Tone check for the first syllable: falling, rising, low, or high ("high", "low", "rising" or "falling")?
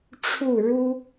falling